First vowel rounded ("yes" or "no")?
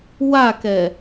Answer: no